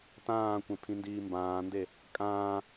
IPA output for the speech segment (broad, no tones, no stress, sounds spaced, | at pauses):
t ãː kʷ ẽ pʰ ĩ n d iː m b ãː n d e | kʼ ãː